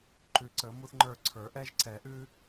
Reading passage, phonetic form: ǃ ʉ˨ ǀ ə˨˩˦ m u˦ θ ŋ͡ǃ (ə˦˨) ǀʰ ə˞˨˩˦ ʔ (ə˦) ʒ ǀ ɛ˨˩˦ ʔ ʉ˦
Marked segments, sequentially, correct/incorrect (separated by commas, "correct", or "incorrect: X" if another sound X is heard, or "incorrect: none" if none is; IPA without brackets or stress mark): incorrect: ə˞˦˨, incorrect: ɛ˦